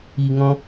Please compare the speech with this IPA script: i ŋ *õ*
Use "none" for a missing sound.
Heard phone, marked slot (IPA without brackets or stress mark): ɔ̃